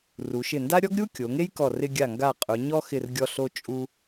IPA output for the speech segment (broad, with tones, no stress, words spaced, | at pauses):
ru˩˧ʃɪ˧˩nda˥ ɾʲɔ˥ɡɾʲu˥ kʲo˩˧ŋe˥jkɔ˧˩ rɪ˧ɡʲa˧˩ŋɡa˧˩ qʼʊ˩˧ɲɔ˥xɪ˧˩rɡʲɔ˧ ɬo˧t͡ʃʼu˧